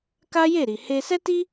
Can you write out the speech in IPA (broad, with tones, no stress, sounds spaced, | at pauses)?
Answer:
k a˦ j e˦˨ ɾ i˨ h e˧ s ɛ˦ t i˦